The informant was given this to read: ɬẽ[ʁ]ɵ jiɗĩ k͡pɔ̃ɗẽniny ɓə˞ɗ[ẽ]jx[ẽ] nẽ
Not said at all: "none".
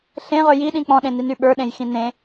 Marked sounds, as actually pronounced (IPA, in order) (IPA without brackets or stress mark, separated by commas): ʁ, ẽ, ĩ